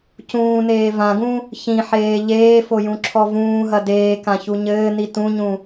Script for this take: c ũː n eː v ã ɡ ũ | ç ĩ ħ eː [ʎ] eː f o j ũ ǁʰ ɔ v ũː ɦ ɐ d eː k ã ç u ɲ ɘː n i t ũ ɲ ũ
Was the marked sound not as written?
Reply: no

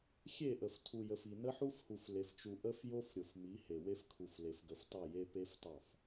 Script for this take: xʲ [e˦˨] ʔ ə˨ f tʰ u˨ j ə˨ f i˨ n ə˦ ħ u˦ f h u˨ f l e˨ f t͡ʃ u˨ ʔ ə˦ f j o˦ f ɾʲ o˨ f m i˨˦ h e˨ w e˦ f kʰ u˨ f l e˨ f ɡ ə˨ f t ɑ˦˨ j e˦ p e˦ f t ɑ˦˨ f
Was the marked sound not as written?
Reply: no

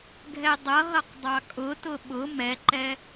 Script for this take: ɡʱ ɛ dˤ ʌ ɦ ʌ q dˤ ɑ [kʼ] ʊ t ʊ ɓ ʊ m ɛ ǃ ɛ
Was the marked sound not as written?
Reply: no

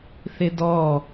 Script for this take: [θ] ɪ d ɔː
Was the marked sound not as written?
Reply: no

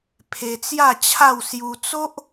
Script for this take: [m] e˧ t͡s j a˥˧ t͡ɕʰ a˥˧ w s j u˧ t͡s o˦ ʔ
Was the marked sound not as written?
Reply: yes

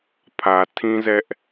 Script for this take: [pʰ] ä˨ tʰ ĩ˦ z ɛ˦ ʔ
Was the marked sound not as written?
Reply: no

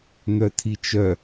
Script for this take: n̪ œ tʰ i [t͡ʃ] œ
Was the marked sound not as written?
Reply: no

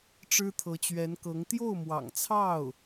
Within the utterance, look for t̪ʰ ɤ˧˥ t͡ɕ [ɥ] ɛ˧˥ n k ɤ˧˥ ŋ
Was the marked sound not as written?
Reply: no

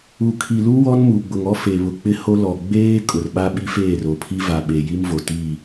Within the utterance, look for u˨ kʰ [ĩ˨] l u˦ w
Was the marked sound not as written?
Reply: yes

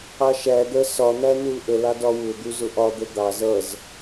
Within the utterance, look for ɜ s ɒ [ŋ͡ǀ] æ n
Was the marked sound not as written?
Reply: yes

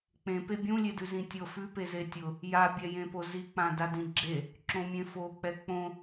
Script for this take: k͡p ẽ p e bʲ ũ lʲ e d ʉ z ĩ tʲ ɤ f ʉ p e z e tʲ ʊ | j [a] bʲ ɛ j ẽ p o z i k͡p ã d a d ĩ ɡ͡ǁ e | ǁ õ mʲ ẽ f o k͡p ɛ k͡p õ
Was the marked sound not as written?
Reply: no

